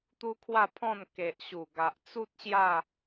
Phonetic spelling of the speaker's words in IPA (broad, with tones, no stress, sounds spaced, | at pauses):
t̪ u˦ kʰ w a˥˧ pʰ ɔ̃˥˧ n k e˨ ʔ ɕ u˨˩ ɡ a˨ ʔ t͡s u˦ t̚ ɕ j a˥˧